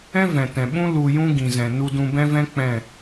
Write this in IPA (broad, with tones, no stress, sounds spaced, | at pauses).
ɛ̃˦ v ɛ̃˨ t ɛ̃˨ ɓ ũ˦ l u˧ j ũ˦ ɡ ĩ˨ z ɛ̃˨ n u˧ d ũ˧ b ɛ̃˦ v ɛ̃˦ k͡p ɛ̃˦˨